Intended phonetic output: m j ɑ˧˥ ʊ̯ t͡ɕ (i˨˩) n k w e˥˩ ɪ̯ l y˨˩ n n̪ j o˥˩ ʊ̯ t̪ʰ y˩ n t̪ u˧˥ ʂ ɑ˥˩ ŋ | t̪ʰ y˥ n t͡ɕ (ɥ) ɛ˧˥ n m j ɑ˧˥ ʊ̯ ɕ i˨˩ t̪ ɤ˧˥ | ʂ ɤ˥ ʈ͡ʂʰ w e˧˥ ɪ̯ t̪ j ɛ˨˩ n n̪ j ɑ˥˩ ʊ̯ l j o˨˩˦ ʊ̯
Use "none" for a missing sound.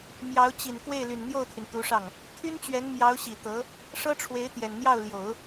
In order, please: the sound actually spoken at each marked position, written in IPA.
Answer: i˨˩, ɥ

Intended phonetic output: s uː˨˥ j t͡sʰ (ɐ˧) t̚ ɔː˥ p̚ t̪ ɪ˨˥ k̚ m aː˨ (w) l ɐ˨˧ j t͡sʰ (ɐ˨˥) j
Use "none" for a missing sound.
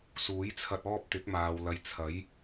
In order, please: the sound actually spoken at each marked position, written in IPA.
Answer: ɐ˧, w, ɐ˨˥

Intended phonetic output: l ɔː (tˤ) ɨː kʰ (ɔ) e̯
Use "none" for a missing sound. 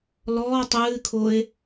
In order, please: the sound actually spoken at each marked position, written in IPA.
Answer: tˤ, o

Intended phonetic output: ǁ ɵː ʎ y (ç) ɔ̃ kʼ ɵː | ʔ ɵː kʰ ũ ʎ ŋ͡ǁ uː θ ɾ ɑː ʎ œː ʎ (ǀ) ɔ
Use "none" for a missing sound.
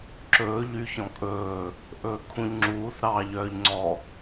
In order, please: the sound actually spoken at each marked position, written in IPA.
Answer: ç, ŋ͡ǀ

